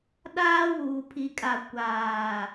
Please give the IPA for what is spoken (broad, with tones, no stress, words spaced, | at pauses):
ɗaː˦wuː˨pʰi˨kʼa˨ kʷaː˨